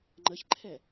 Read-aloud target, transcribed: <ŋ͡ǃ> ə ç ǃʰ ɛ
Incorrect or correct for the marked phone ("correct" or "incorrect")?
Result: correct